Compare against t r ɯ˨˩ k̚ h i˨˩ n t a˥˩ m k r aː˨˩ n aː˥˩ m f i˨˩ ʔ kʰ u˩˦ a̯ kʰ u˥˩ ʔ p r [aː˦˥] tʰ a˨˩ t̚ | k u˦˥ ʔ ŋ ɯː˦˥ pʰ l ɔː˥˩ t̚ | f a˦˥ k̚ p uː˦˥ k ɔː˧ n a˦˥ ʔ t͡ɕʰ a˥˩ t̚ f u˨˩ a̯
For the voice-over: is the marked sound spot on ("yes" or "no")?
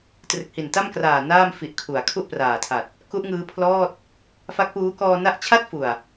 no